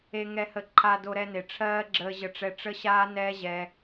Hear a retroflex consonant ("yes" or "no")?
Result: yes